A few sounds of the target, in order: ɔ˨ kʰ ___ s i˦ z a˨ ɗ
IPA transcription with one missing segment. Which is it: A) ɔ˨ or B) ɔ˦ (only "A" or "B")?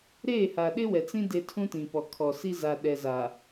A